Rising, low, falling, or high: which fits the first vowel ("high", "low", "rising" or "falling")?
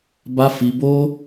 high